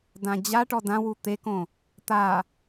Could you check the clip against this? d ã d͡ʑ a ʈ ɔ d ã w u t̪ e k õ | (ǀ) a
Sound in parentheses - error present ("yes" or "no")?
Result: yes